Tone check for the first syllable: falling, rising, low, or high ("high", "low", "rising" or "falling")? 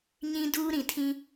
high